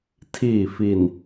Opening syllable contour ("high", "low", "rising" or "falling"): low